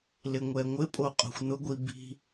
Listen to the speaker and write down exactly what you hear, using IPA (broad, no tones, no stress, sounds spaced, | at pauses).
l ɪ ŋʷ ɛ ŋʷ ɪ pʼ o qʼ o̤ xʷ n̪ ʊ ɡʷ i b i̤